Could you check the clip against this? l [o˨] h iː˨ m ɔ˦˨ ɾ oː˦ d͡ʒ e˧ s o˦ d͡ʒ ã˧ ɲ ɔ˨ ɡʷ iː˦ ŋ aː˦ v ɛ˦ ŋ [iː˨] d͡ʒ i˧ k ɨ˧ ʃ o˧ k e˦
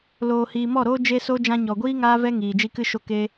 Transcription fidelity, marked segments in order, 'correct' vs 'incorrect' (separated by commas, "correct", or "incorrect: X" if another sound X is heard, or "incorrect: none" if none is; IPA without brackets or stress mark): incorrect: oː˨, correct